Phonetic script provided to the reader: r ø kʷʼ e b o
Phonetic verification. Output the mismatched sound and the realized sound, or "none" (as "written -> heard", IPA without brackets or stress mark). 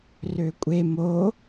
b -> m